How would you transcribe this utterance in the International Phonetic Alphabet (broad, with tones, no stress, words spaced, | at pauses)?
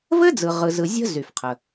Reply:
vɘ˥d͡zɯ˩ ʁɯ˩zɯ˩ zʲə̤˥ zy˩fqʰə˩